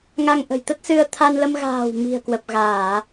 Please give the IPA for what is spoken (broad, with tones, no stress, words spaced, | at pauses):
ŋa˧ŋʔə̤˨˩jt̪ə˦˥t̚sɨ˧ə̯ t̪ʰa˧n lə˧m ɣa̤ː˨˩w mi̤˨˩ə̯kwə˨˩p̚ɣaː˧˩˨